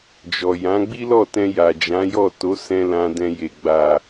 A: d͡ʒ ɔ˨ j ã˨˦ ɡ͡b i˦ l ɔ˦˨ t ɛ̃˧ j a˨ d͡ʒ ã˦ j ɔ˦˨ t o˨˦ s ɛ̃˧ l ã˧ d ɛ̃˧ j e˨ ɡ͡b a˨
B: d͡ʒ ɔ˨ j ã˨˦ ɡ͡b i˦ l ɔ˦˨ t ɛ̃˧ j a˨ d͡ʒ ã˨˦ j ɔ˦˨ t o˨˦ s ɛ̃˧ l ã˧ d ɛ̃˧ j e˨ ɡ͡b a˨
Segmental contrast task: B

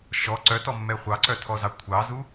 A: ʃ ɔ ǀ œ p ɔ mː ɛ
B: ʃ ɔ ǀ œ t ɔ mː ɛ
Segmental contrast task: B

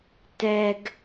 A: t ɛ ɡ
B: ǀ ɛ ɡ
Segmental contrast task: A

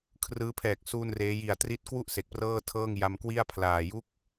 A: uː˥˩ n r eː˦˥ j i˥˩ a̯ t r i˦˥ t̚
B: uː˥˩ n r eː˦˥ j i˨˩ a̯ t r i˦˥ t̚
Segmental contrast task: B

